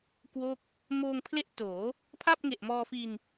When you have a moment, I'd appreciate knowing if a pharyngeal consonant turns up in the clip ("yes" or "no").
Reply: no